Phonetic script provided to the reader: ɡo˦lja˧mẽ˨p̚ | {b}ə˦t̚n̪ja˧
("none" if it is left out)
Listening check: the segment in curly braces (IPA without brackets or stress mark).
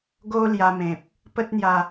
p